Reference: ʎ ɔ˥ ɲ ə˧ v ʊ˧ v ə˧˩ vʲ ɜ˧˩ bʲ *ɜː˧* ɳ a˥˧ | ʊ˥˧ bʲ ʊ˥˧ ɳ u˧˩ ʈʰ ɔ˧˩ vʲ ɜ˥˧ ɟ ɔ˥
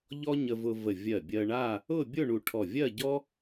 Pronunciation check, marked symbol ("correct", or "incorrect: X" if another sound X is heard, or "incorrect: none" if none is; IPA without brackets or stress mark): incorrect: ɜ˧